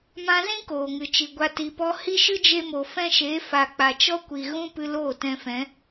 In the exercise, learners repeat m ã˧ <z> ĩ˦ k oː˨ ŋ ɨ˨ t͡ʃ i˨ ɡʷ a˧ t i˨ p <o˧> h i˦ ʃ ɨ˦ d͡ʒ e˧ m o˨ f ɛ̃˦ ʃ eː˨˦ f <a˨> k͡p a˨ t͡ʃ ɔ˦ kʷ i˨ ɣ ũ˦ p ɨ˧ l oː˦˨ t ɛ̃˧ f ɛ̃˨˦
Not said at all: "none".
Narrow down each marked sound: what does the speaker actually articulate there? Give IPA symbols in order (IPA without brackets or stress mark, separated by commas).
z, ɔ˧, a˨